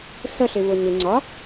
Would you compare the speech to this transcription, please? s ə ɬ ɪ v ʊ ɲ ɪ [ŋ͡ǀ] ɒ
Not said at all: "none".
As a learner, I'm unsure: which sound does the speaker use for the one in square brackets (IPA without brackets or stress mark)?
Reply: ŋ͡ǀ